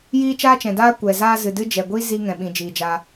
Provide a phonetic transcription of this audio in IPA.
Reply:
jiː˦t͡ʃaː˦t͡ʃɛ̃˨ daː˦kʷɛ˨ zaː˧ zɨ˨dɨ˦ d͡ʒɛ˨ɡʷi˦ zi˦ ŋɛ̃˨ɓĩ˨d͡ʒiː˨d͡ʒaː˧

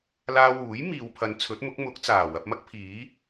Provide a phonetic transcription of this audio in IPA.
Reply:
laː˧wuː˨˥j miː˨wpʰɐ˨˧n t͡sʰɵ˨˥t̚mʊ˨˥k̚mʊ˨˥k̚t͡saː˨˩ wɐ˧p̚mɐ˥k̚pʰiː˨˥

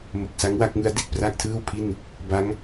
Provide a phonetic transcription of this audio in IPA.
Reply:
mo˨˩k̚sa˦˥ŋwa˥˩k̚ŋɯ˦˥a̯ di˨˩t̚pra˥˩k̚tʰɯː˥˩wpʰi˥˩n | ba˦˥ŋ

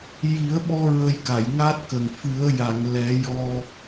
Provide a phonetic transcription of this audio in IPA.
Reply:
ji˨˩˦ə̯ɓɔ˧ ɹə˧jka˨˩˨jŋa˦˥t̚kə˨˩ŋ fɨ˨˩˦ə̯ ja˨˩˨ŋlɛ˨˩˦ jɔ˧

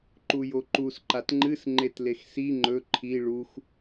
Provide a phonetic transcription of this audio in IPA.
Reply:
ǃujoǃus ǃatŋ͡ǃɨs ŋ͡ǃetlexsi ŋ͡ǃɵ ǃʰi ɭux

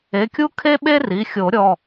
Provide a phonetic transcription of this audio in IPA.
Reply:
e˩˧˩kʲu˦ kʰe˦ɓe˦ri˩˧˩xʲo˨˩˦ ɾʲɔ˩˧˩

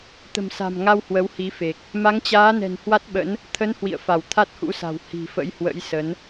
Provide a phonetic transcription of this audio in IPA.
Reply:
t̪ə̤˨˩msa̤˨˩mŋa˧w hwə˨˦whi˨˦fe˨˩k̚ | ma˨˦ŋt͡ɕaː˨˦nɛ̤˨˩n hwa˦˥t̚ɓə̰˧˥n | t̪ʰə˨˦n hwḭ˧˨ə̯ fa˧˩wt̪ʰa˦˥t̚hṵ˧˥sa̤˨˩w hi̤˨˩fə̰˧˥jhwə̰˧˥j sə˨˦n

